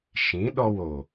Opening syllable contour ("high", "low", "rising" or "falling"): rising